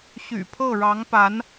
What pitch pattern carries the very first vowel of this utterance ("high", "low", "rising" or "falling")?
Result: low